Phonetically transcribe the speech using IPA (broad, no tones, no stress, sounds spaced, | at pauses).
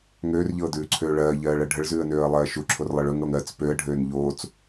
ŋ øː r ʎ ɤː d ʉː ǀʰ øː ɭ ɜː ʎ ɜː ɭ ɜ ɖʱ ə ɭ z ʉː ə̯ n øː ə̯ lˠ ɜː ʃ u ǁʰ o r lˠ ɤ ɭ ø ŋ ɽ o ŋ ɜ t͡s p ø ə̯ ɖʱ øː n ʎ oː t͡s